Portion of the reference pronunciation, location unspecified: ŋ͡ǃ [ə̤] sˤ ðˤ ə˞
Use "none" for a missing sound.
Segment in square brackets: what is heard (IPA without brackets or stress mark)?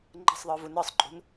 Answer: ə̤